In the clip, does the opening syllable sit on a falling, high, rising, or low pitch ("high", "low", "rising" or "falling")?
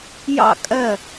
falling